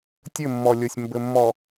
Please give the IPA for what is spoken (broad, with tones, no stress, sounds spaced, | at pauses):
tʲ ɘ˦˨ mː ɔ˨ lʲ o˨ sʲ m b ɘ˨ mː ɔ˨